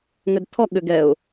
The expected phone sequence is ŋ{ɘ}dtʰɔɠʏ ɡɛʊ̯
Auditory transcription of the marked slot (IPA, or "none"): ɘ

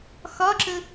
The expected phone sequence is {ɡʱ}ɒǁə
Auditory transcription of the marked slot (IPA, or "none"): x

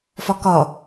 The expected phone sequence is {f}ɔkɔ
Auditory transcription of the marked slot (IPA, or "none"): f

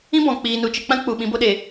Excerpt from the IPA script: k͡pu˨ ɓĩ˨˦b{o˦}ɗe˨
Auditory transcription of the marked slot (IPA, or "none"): o˦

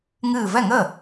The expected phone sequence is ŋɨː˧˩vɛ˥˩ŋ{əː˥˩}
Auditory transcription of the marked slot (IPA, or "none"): əː˥˩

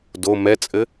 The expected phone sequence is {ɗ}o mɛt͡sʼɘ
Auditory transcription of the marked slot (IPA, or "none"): d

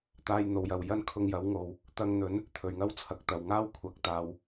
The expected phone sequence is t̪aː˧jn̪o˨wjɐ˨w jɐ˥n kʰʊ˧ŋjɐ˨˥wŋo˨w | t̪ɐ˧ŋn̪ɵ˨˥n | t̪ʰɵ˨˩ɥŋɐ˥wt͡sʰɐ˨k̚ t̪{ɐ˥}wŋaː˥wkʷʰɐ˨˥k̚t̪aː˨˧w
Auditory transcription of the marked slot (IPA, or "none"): ɐ˨˩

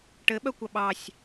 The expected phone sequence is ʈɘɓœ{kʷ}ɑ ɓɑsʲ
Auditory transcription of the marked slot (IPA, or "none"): kʷ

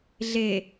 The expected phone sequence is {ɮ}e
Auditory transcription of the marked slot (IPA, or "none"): ɮ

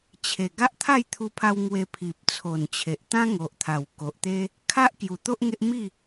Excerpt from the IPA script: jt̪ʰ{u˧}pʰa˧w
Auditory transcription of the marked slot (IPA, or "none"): u˧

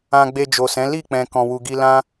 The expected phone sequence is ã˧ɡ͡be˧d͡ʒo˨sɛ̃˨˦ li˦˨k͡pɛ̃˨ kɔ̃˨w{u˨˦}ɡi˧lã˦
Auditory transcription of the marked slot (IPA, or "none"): u˨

